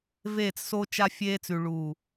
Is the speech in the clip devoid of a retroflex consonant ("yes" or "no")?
no